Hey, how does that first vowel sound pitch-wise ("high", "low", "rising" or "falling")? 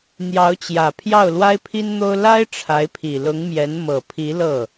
rising